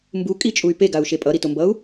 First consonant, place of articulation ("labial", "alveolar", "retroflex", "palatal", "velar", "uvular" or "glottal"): labial